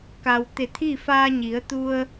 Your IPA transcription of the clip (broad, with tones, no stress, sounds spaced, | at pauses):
k a˩ w t̪ e˧˩ t̪ʰ iː˥˨ f aː˧ ɲ i˩˧ ə̯ t̪ u˧ ə̯